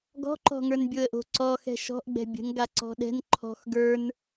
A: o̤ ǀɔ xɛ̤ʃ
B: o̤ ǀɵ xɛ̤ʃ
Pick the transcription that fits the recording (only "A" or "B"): A